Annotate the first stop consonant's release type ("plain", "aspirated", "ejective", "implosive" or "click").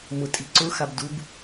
ejective